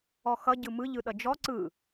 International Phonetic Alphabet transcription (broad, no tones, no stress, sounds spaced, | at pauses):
ɔ x ʌ ɟ ɯ m ɯ ʎ ɯ ɗ ʌ d͡ʒ ɔ ǀ ɯ